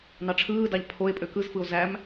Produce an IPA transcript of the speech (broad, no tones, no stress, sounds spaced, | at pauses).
n ɑ ʈ͡ʂʰ ɯː d ɑ ʎ pʰ o e̯ pʼ ø k ɯ z f ɯ o̯ z æ m